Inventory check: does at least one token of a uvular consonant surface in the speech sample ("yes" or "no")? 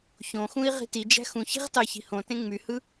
yes